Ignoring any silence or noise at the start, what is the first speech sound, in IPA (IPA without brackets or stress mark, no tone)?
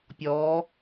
pʲ